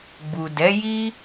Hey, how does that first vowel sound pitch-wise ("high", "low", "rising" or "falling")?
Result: low